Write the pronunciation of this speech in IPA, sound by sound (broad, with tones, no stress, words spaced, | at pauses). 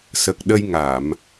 sə˨˩k̚ɗə˧j ŋa˨˩˨m